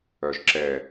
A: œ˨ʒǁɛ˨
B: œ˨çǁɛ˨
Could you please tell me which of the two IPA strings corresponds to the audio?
A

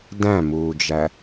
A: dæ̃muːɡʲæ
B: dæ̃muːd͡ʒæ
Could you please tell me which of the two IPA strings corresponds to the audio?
B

